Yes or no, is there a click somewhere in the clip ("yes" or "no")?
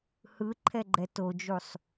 yes